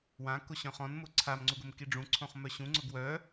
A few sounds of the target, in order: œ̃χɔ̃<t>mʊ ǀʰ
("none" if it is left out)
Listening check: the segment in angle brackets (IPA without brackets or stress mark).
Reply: n